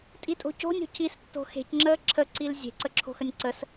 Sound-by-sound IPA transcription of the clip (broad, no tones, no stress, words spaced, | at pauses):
tʼitʼo̤co̤nʲo̤ cʰistːo̤ xe̤cŋ͡ǁəː ǁʰəǀil zʲe̤ǀə ǁʰo̤xənʲǀəs